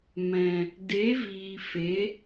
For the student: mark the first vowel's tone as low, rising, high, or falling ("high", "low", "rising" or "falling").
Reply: low